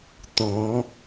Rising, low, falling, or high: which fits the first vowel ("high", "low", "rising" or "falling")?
rising